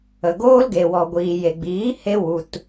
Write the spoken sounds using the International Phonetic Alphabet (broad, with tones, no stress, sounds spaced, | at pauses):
ə˨ ɡ oː˦ l ɡ e˨ w ɔ˨ ɡʷ iː˨ j e˨ ɡ͡b iː˨˦ h e˧ w u˨ t